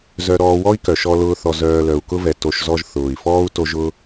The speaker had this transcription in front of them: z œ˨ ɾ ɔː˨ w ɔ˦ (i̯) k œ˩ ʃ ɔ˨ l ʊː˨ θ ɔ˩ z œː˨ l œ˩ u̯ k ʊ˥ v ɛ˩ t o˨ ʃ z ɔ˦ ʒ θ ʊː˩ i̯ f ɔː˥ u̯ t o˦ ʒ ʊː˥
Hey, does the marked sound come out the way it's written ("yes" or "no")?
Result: yes